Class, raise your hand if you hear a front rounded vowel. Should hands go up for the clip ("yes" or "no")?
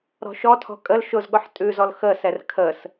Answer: no